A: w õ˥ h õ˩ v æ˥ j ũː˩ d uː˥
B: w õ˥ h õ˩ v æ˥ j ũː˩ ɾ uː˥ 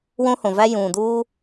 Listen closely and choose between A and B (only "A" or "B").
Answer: A